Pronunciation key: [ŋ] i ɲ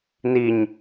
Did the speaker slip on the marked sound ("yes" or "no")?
yes